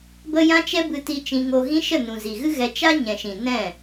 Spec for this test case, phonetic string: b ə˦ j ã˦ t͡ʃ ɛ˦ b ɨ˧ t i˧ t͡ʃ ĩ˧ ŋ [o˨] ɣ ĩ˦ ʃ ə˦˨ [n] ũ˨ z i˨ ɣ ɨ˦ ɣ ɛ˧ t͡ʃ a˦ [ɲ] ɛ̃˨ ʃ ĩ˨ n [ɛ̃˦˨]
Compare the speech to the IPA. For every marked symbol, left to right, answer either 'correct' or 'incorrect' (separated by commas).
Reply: incorrect, correct, correct, correct